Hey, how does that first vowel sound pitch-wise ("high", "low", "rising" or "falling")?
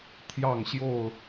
falling